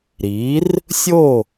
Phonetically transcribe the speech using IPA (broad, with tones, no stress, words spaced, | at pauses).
ɾi˩˥r | sʲo˥˩